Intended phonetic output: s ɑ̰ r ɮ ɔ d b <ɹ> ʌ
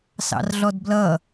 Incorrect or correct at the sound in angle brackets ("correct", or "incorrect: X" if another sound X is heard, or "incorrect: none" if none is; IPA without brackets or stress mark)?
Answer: incorrect: l